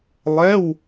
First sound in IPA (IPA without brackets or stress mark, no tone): lˠ